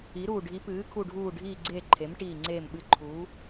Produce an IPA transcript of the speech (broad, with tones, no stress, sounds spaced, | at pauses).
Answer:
i˩˧ ɾ uː˨˩ ɖʱ i˩˧ p ɨː˩˧ kʰ u˨˩ ɖʱ uː˨˩ ɖʱ iː˨˩ ɡ͡ǀ eː˨˩ ǃʰ e˩˧ m ʈ iː˨˩ ŋ͡ǀ eː˨˩ m ɓ ɨ˨˩ ǃʰ uː˩˧